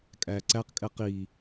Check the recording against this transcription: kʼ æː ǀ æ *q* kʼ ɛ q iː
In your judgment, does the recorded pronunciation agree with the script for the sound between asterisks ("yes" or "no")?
yes